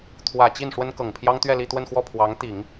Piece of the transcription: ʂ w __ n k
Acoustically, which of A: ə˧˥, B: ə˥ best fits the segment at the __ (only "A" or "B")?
B